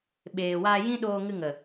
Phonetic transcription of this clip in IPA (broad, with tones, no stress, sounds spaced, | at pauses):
ɓ eː˨ w aː˧ j ĩ˦ ɗ oː˧ ŋ ɨ˧ ŋ ə˨